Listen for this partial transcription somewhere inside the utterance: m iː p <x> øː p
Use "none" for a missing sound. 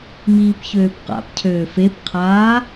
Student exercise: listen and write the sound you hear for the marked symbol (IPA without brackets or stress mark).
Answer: ç